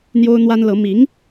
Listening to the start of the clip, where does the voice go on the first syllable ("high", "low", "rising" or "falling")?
high